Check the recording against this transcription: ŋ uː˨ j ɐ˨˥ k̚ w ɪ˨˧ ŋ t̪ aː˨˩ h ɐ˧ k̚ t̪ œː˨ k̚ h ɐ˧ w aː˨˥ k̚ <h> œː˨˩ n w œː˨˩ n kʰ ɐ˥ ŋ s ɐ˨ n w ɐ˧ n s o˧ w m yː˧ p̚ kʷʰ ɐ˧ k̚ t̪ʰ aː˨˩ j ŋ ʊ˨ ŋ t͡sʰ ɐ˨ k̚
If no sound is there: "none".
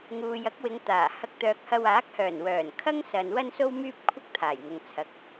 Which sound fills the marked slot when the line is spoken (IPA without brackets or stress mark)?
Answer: h